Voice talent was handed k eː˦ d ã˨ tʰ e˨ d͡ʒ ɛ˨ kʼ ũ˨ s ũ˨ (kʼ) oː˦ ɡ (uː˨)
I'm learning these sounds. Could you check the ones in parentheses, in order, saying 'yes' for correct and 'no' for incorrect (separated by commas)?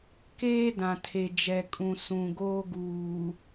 no, yes